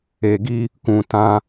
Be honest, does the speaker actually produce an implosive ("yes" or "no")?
no